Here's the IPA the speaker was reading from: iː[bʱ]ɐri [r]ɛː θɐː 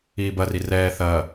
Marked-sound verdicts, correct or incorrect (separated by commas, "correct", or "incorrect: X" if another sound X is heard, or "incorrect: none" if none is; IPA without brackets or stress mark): incorrect: b, correct